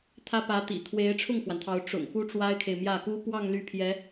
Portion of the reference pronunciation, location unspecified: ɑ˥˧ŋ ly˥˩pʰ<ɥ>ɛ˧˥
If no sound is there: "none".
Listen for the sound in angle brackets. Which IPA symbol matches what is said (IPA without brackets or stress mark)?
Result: j